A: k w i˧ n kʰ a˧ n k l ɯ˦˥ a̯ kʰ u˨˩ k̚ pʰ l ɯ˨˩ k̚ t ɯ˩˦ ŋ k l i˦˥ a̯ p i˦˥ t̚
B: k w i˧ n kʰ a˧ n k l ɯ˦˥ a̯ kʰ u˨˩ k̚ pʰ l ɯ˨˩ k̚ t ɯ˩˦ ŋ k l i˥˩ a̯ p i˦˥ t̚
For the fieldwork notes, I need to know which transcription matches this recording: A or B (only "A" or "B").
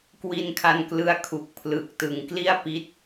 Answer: B